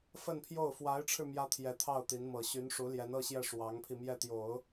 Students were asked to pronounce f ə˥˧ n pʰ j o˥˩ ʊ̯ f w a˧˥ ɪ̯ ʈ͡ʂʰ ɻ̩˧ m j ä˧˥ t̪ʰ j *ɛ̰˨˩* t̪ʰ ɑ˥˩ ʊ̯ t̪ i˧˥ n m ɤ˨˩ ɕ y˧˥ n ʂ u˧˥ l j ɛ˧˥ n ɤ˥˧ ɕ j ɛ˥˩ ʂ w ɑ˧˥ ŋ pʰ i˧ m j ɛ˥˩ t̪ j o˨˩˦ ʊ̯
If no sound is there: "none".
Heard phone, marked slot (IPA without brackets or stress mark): ɛ˧˥